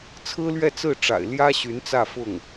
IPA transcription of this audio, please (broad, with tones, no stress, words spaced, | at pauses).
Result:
t͡sʰɹ̩˥lɥɛ˥˧ t͡sɹ̩˥˩ʈ͡ʂa̰˨˩ɪ̯ ljä˥ ɕy˧˥nt͡sä˥˧ fʊ˥˩ŋ